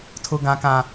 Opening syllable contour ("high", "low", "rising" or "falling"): high